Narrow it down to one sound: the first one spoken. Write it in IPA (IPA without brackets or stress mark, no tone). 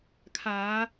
kʰ